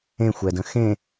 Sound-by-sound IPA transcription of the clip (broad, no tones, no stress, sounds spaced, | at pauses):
ẽ xʷ ɛ d ə̃ x ẽ